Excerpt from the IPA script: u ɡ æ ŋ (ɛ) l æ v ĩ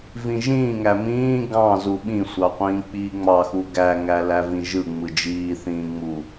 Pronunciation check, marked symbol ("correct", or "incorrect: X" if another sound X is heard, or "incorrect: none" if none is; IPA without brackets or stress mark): incorrect: æ